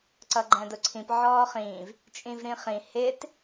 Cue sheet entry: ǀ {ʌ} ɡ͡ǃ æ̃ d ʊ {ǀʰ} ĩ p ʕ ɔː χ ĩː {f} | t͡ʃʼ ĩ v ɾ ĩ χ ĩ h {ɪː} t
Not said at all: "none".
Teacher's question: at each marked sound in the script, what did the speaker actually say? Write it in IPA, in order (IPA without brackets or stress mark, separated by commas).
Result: ʌ, ǀʰ, v, ɪː